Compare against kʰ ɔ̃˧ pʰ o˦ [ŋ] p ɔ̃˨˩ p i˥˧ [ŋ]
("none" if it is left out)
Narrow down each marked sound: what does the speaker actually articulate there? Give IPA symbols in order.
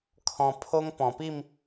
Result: ŋ, m

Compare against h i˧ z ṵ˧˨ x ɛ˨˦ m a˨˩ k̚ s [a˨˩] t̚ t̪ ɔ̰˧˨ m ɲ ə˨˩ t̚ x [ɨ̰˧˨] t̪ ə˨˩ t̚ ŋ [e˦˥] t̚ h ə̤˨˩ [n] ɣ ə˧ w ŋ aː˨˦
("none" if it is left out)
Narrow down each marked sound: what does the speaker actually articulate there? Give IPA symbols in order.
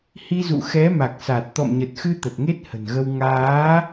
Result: a˨˩, ɨ˧, e˦˥, n

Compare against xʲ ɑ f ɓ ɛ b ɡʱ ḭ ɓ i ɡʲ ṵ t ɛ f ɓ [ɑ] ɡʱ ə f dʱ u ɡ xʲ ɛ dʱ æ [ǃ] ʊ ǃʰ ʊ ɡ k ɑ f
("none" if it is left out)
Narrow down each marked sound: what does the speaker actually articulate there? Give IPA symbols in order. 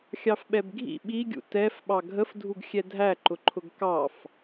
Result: ɑ, ǃ

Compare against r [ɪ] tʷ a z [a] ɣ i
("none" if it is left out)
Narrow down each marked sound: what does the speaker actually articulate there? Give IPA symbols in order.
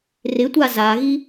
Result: ɪ, a

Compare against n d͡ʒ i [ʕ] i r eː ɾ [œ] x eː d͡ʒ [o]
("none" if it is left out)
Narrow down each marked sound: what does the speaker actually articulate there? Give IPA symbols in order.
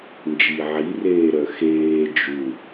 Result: ʕ, œ, u

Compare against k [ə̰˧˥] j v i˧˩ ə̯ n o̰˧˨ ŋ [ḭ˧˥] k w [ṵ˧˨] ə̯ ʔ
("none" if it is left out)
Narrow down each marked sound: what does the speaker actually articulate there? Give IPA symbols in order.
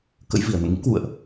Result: ə̰˧˥, ḭ˧˥, ṵ˧˨

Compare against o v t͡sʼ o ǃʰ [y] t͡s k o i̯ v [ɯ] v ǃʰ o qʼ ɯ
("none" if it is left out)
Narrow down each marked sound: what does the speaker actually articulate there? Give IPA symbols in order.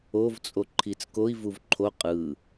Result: i, u

